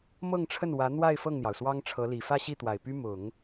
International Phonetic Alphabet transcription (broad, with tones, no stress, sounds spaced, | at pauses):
m ɤ˥˧ ŋ ʈ͡ʂʰ ə˥˩ n w ä˧˥ n̪ w a˥˧ ɪ̯ f ɤ˥˩ ŋ n̪ j ɑ˩ ʊ̯ s w ɑ˥ ŋ ʈ͡ʂʰ ɤ˧˥ l i˨˩ f ä˥˧ ɕ i˥˩ t̪ w a˨˩ ɪ̯ p y˥ m ʊ˨˩˦ ŋ